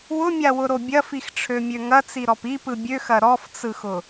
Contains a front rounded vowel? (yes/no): yes